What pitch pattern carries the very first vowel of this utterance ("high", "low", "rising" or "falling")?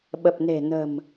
low